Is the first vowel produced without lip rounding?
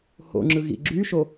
no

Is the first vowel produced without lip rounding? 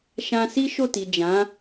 yes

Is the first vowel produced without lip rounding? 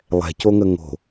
yes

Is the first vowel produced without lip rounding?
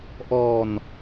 no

